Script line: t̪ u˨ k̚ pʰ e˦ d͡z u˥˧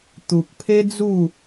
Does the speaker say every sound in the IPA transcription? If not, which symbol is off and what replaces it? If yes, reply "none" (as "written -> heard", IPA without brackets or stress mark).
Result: none